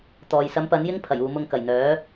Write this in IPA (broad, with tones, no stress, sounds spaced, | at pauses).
t̪ ɔː˨ j s ɐ˨˥ m p ɐ˨˥ n j ɪ˥ ŋ pʰ ɐ˨˩ j uː˨ m ʊ˧ ŋ k ɐ˨˩ j n̪ œː˨˥